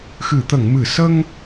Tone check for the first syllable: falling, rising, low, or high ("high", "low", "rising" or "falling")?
low